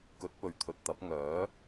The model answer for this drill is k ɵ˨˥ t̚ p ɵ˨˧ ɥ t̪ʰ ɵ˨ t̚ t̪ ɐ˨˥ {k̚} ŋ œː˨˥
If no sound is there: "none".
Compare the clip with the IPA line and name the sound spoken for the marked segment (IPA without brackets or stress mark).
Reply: p̚